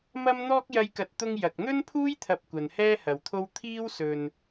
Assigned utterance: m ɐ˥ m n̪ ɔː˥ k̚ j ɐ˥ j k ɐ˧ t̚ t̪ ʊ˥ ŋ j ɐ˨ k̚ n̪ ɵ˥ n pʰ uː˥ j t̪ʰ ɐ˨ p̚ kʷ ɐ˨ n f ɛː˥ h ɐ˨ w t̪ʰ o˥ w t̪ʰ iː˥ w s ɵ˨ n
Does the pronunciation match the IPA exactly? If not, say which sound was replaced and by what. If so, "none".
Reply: f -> h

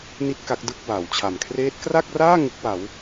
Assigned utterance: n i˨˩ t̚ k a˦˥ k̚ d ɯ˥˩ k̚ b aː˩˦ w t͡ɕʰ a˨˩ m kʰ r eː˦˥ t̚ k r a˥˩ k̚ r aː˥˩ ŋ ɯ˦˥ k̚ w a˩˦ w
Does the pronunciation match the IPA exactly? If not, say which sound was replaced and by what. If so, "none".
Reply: i˨˩ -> i˦˥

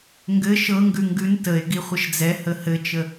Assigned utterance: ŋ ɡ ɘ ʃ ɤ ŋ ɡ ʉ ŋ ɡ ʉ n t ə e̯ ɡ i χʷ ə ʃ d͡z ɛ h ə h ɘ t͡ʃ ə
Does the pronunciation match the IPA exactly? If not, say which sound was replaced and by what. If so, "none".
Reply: none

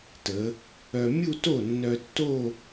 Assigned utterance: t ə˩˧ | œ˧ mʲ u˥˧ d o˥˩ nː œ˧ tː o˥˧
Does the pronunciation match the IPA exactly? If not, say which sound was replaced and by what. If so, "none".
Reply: d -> t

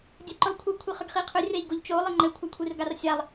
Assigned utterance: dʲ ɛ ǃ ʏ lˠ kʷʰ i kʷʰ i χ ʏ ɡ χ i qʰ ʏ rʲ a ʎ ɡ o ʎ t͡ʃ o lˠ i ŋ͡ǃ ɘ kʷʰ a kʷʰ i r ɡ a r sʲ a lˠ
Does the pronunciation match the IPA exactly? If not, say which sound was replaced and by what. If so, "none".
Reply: none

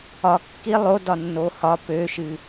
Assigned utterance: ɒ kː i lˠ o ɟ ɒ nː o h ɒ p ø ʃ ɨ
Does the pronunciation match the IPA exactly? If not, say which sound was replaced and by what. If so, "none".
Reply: ɟ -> d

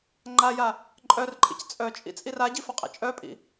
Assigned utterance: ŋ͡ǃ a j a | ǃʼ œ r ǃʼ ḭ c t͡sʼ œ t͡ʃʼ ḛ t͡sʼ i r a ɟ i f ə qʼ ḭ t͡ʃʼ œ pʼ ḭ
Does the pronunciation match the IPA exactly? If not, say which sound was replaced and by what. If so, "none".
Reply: ḛ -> ḭ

